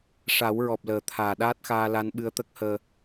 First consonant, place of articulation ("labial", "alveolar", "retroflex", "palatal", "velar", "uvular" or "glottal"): retroflex